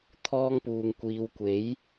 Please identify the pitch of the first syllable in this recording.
high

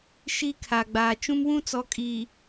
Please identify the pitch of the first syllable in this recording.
high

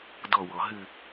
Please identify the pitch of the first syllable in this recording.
falling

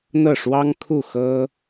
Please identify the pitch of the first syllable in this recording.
falling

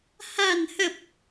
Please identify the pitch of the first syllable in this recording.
low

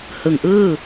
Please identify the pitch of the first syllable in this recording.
low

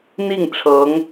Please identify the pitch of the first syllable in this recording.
falling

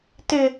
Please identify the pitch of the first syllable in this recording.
high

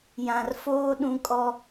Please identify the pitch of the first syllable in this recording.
low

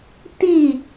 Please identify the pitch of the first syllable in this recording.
falling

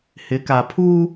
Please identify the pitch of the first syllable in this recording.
rising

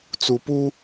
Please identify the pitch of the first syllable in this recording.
low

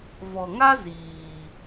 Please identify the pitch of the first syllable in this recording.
low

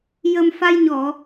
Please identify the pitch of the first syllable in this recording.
low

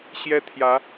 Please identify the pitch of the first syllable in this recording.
high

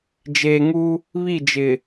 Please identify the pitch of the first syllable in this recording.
low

